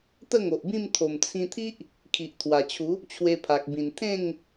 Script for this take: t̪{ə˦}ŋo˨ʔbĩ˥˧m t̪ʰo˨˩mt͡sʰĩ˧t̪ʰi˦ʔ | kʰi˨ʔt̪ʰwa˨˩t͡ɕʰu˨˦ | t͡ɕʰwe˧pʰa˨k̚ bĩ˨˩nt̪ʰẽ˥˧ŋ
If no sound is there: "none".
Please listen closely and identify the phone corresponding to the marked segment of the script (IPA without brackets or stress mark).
ə˥˧